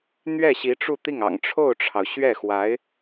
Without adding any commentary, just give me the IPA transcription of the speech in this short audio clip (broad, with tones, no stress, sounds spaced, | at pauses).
n̪ ɥ ɛ˥˩ ɕ i˧˥ ʈ͡ʂ u˥˧ t̪ i˥˩ ŋ ɑ̰˨˩ ŋ ʈ͡ʂʰ o˥˩ ʊ̯ ʈ͡ʂʰ ɑ˩ ʊ̯ ɕ ɥ ɛ˥˩ x w a˧˥ ɪ̯